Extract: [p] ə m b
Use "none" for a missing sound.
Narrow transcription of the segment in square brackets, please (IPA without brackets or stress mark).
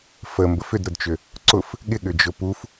f